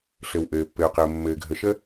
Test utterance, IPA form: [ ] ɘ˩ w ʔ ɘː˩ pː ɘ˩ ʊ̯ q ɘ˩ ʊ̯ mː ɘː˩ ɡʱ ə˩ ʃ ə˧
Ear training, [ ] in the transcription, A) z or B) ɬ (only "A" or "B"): B